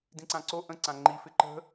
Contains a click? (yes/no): yes